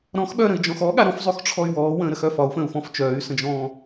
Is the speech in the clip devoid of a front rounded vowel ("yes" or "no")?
no